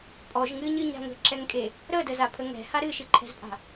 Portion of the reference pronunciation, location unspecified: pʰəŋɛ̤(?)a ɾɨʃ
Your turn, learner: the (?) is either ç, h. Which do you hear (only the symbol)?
h